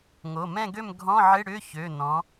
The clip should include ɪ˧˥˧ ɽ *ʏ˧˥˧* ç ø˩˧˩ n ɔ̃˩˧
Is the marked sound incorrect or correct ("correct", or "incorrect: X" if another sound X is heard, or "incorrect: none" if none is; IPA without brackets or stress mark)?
correct